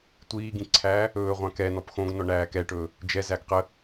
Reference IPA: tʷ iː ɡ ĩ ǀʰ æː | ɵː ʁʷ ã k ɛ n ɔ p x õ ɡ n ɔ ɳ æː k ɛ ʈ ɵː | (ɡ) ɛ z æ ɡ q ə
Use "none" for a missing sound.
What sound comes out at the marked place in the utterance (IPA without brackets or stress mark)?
d͡ʒ